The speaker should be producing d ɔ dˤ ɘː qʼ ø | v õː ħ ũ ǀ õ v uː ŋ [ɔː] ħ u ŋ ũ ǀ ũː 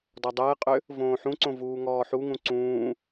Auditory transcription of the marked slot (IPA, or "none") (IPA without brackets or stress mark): ɔː